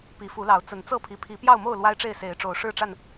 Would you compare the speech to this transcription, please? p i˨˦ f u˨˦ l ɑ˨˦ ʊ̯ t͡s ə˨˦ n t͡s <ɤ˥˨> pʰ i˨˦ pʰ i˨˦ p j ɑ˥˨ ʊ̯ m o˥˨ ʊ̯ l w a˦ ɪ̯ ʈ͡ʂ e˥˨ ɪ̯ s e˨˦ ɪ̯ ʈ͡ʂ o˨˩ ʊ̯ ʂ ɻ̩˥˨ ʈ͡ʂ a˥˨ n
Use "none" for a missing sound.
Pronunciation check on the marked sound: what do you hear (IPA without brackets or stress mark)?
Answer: ɤ˥˨